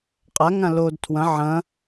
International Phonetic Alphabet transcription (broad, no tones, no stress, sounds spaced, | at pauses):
qʼ a ŋ ã l o d tʰ w ɐ̃ ʕ ɐ̃